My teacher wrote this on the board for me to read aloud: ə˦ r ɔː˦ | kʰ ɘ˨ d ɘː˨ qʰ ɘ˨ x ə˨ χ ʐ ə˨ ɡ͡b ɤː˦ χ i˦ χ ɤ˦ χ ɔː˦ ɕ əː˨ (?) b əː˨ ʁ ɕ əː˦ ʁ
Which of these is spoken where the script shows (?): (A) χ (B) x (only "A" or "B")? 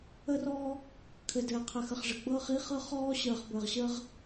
A